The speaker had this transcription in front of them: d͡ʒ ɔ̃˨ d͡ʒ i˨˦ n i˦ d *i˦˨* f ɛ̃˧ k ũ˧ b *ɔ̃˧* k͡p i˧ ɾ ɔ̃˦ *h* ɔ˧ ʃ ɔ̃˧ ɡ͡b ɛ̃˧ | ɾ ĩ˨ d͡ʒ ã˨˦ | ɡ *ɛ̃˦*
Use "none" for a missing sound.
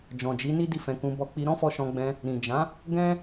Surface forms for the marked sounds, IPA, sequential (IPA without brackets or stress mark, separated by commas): i˦˨, ɔ˧, f, ɛ̃˦